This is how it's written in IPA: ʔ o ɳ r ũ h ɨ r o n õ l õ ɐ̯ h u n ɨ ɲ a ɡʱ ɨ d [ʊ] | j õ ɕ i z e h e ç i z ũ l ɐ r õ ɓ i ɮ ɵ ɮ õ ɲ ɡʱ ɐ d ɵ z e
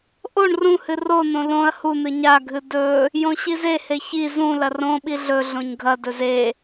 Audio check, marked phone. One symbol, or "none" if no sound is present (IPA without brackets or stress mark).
ɵ